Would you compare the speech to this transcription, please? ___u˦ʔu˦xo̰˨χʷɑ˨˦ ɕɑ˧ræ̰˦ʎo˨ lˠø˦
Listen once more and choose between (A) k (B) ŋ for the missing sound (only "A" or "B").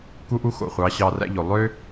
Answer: A